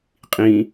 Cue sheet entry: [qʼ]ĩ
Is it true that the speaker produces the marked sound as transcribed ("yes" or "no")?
yes